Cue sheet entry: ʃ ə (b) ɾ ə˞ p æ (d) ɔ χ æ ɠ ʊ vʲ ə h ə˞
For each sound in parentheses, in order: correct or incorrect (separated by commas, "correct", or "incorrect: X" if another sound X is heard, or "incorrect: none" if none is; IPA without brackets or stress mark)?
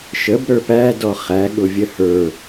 correct, correct